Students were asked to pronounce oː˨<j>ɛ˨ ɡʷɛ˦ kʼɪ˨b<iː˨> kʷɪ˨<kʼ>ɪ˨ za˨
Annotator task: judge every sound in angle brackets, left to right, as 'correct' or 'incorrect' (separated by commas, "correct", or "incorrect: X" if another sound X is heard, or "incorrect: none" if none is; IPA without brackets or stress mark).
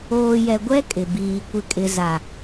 correct, correct, correct